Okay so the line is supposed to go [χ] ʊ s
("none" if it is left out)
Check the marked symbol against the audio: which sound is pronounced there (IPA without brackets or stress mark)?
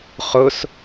χ